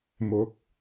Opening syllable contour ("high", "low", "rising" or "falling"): rising